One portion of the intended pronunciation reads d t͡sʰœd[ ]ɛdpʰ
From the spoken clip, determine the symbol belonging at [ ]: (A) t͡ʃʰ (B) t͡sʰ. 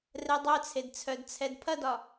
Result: B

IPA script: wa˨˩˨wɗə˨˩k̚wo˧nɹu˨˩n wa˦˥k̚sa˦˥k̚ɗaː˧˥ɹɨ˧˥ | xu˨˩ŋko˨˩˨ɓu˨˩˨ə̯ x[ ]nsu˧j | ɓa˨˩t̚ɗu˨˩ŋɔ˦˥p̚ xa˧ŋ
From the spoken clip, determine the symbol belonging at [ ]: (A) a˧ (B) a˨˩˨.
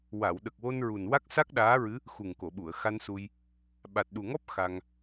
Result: A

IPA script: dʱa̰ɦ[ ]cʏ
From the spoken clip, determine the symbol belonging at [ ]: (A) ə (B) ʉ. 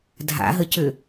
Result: A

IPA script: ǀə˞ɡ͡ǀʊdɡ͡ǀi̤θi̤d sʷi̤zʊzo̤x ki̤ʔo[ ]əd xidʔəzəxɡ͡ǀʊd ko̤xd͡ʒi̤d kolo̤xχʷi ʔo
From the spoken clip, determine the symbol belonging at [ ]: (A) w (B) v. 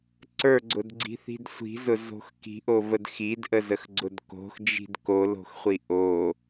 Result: B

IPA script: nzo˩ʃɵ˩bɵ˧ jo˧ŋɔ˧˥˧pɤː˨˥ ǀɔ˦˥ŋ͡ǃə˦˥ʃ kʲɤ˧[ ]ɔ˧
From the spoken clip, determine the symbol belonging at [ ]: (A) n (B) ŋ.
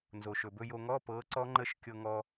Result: B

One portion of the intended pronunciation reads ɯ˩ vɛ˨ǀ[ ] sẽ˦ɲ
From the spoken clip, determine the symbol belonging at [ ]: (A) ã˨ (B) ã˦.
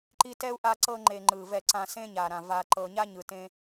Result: A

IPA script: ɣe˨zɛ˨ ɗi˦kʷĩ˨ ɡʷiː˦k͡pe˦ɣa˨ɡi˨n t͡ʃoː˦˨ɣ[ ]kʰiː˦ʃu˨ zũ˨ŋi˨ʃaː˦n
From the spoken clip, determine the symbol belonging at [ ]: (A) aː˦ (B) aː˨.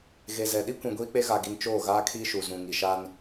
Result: A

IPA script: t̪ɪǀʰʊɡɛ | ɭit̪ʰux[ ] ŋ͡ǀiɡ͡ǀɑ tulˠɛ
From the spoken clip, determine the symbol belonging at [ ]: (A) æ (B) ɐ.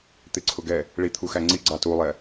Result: A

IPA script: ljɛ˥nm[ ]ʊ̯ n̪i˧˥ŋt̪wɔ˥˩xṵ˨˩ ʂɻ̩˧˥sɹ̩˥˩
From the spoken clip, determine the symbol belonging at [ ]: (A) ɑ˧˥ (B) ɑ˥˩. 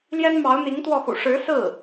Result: A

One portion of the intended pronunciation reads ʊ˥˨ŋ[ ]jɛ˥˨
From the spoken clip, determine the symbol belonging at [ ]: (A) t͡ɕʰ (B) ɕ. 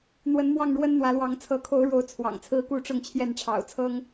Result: A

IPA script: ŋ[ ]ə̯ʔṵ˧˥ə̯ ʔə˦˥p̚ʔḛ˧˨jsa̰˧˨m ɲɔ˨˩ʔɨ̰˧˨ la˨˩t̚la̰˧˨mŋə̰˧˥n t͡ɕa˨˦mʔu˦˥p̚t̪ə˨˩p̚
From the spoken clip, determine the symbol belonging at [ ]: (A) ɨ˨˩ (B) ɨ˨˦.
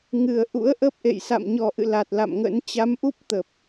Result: A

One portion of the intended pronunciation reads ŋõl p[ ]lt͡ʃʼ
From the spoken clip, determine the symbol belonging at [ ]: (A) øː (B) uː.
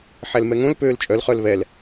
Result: A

